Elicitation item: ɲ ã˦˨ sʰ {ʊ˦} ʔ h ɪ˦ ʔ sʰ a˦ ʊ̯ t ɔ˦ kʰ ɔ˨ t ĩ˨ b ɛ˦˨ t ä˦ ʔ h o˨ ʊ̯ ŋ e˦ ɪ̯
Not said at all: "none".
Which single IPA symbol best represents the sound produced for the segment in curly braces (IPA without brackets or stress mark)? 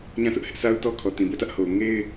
ʊ˦